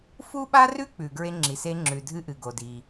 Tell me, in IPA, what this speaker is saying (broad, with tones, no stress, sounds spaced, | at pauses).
f u˥ ɓ a˥ r ʉ˥ k͡p ʉ˩ ɡ ɹ e˥ ŋ͡ǁ i˩ s e˥ ŋ͡ǁ ʉ˩ dʱ ɨ˥ ʔ ɨ˩ ɡ o˩ d i˩